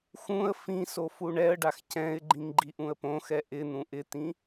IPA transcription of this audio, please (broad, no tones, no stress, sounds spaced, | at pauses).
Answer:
x ũ ə̯ f ĩ s o f u ɳ ɛ ə̯ ɖ a x c ɛ̃ ɪ̯ ɡ͡ǃ ĩ ŋ ɡ͡ǃ i ʔ ũ ə̯ p õ x ɛ ʔ ɪ n̪ ũ ʔ ɪ t̪ ĩ